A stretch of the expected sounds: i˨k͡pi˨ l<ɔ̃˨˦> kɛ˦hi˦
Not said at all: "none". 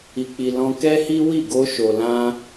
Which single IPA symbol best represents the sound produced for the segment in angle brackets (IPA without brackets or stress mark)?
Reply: ɔ̃˧